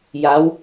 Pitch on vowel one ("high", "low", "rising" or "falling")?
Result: rising